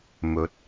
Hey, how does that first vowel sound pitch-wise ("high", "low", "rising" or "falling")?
rising